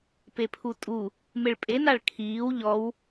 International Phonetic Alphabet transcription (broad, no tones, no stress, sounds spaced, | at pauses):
p e pʰ u tʼ u | m e ɭ pʼ e n a ɭ kʰ iː w ʎ ɔ w